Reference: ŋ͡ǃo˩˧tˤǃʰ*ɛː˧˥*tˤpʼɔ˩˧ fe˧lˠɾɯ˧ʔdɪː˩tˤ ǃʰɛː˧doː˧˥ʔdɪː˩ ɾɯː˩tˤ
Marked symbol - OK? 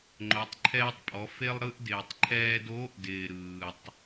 no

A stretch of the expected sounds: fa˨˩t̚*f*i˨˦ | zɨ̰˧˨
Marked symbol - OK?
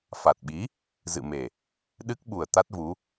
no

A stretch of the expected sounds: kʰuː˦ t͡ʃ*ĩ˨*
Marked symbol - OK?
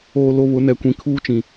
yes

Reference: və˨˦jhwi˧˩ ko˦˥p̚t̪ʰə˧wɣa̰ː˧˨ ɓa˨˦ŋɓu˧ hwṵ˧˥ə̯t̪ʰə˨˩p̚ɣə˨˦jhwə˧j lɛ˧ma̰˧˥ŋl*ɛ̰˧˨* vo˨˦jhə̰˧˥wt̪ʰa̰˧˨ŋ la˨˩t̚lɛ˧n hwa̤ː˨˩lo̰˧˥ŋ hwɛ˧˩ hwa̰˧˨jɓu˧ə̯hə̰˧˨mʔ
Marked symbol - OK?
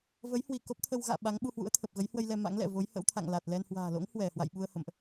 yes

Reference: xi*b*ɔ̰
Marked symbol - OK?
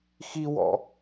no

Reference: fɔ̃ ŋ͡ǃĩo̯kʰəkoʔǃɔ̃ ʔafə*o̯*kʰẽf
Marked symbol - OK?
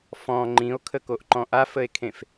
no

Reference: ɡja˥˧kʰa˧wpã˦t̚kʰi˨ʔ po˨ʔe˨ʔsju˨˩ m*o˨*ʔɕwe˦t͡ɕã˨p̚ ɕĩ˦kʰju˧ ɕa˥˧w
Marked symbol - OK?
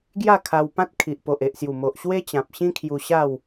yes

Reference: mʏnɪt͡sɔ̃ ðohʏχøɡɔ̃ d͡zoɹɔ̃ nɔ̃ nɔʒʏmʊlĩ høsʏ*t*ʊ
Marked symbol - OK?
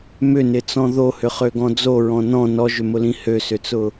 no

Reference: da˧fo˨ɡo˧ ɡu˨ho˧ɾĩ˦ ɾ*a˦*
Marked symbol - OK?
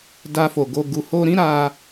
yes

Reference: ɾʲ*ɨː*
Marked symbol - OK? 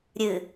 no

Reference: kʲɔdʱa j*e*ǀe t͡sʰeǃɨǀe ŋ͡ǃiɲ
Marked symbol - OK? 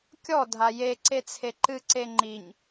yes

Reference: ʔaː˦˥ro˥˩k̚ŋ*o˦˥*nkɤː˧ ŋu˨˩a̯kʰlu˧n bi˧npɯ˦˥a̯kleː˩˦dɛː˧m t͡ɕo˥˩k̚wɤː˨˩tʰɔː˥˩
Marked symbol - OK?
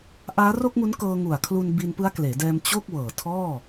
no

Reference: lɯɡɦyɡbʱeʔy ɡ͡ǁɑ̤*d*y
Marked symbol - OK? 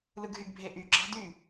yes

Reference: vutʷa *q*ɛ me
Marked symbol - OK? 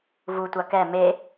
no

